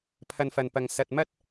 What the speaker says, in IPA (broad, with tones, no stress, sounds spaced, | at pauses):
pʰ ɐ˧ n f ɐ˨ n p ɐ˨ ŋ s ɐ˨ t̚ m ɐ˥ t̚